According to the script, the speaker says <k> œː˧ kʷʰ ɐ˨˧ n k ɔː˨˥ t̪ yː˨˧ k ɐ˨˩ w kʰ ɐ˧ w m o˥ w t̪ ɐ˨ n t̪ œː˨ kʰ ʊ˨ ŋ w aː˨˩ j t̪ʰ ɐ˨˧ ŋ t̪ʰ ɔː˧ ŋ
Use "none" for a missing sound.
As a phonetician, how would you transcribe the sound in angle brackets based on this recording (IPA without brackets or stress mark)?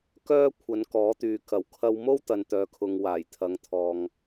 k